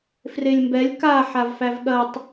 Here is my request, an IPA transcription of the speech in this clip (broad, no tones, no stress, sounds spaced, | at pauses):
f r e lʲ m b ɛ lʲ k a ħ a v f æ v ɠ ɐ tˤ